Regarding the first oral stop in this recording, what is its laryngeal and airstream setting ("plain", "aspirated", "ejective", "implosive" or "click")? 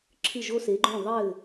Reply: click